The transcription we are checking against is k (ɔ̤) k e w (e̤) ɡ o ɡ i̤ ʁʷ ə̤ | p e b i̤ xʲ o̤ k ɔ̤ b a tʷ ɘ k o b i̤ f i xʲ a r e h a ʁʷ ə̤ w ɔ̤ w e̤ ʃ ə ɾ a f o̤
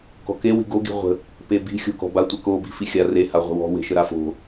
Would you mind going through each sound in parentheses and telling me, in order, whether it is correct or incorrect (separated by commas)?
correct, incorrect